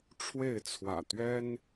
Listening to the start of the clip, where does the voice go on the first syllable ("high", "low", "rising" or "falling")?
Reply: falling